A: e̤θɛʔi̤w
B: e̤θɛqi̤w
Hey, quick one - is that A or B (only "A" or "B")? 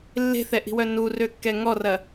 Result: A